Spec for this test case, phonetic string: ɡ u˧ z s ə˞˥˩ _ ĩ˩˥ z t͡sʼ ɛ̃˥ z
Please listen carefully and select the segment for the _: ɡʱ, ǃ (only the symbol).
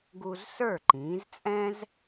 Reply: ǃ